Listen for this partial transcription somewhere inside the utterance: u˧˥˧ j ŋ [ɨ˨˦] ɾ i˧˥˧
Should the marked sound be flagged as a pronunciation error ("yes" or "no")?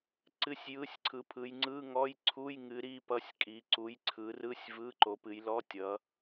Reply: no